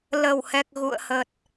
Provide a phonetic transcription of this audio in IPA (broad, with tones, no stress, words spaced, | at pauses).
lə˨˩whɛ˨˩k̚ ɣṵ˧˨ə̯hə˨˩t̚